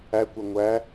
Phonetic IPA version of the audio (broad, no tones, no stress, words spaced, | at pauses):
ækʷɛ ŋʷæ